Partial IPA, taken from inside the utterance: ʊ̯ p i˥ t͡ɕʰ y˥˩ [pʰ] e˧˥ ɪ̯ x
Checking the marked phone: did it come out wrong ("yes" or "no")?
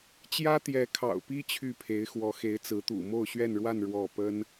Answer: no